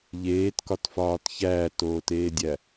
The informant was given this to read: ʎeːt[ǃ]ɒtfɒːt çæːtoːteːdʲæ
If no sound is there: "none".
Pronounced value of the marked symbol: k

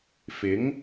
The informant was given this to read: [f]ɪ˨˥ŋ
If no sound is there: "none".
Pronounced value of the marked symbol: f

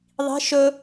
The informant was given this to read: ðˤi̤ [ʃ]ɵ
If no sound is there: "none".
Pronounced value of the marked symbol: ʃ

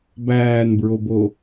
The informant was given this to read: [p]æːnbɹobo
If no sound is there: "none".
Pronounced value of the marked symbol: b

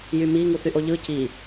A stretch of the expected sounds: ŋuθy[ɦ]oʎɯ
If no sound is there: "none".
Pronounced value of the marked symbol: ʔ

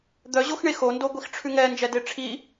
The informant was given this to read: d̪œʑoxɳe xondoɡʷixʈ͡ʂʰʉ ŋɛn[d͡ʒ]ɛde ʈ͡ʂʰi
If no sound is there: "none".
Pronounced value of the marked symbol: d͡ʒ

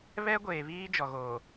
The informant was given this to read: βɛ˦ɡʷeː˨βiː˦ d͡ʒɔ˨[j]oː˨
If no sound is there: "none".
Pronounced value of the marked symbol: ɣ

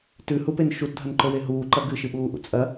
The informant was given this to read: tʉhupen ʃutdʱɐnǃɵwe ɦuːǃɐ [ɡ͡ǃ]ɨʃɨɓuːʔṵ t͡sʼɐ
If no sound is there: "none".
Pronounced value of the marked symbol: ɡ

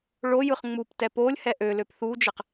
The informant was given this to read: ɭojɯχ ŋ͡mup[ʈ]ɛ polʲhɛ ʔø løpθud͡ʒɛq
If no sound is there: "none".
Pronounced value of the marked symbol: t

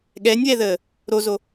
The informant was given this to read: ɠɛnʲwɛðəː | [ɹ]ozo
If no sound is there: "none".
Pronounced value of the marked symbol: ɾ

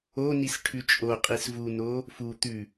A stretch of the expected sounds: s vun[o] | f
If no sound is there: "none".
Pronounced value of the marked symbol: o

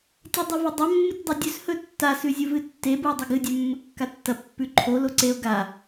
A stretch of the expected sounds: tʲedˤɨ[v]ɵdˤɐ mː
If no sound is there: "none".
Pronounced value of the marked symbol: v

